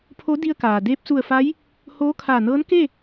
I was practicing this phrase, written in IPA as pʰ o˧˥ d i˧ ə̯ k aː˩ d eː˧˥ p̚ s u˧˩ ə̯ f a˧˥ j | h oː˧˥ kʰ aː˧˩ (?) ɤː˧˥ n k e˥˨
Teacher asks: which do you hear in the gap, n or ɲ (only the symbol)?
n